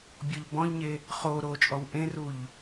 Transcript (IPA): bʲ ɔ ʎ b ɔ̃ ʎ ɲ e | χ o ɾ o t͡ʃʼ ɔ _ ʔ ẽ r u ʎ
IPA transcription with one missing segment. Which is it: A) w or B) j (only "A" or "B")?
A